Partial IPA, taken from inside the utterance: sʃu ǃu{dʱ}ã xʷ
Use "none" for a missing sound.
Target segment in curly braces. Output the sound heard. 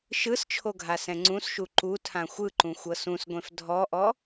tʰ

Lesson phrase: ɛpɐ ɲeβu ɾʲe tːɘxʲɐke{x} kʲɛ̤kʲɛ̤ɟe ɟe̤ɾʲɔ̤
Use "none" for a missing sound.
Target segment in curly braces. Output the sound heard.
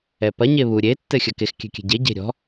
x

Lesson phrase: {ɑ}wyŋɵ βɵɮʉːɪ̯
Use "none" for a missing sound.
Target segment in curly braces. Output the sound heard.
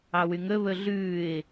ɑ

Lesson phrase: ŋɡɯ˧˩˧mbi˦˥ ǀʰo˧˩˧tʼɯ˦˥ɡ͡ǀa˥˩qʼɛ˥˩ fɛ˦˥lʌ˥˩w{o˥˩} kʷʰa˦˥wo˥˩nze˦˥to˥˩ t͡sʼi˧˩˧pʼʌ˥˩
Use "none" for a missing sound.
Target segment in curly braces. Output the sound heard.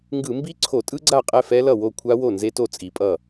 o˥˩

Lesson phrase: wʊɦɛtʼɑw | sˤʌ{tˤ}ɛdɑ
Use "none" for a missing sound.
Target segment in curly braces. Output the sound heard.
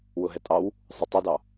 tˤ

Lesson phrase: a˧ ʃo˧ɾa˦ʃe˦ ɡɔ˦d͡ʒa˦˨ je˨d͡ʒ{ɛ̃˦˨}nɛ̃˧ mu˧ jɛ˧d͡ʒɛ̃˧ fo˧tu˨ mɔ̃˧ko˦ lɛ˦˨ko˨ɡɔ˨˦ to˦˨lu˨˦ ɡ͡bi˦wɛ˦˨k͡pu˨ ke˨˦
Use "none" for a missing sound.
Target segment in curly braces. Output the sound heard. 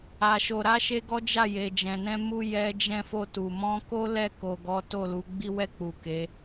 ɛ̃˨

